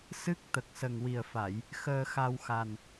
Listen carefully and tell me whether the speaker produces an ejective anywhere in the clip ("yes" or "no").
no